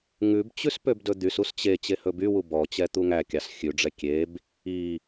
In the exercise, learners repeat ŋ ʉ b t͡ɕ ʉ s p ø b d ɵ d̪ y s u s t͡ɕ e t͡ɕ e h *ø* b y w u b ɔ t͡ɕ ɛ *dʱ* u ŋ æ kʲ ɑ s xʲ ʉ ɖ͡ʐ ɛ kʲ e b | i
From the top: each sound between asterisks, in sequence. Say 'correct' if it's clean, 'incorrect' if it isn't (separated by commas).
incorrect, incorrect